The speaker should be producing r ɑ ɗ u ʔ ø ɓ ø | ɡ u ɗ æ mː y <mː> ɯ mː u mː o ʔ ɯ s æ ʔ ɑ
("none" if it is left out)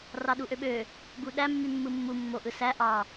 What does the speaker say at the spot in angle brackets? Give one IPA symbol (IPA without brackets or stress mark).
mː